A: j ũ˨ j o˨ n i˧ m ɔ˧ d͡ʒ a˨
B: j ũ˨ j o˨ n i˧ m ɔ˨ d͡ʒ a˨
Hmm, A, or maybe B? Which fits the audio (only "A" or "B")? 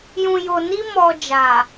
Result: B